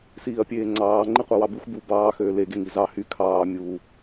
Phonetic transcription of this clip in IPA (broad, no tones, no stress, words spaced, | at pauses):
siːɐ̯pʲeːŋ͡ǀɑː ŋ͡ǃiqʷɑwɑbux bu bɑː xøːle ɡeŋizɑ hy kʰɑː mʲu